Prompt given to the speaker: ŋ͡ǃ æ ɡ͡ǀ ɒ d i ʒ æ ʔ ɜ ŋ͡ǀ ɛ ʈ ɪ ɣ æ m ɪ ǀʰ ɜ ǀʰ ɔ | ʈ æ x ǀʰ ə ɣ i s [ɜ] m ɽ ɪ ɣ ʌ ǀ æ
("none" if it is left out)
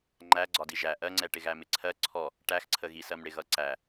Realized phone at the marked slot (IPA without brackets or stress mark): ɜ